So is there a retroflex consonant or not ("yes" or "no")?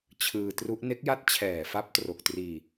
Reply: no